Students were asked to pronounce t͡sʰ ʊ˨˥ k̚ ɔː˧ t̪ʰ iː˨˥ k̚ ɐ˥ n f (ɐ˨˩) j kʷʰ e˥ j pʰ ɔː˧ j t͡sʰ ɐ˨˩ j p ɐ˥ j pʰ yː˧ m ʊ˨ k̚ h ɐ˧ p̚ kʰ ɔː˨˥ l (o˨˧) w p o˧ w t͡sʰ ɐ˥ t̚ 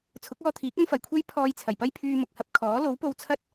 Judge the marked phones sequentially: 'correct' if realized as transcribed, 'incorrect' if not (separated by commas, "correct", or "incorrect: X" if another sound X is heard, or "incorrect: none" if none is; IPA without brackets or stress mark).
correct, incorrect: o˨˥